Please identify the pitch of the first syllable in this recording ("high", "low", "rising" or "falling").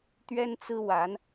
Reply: high